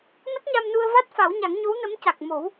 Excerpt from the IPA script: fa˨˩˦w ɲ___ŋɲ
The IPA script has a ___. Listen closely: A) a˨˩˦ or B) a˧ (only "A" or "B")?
A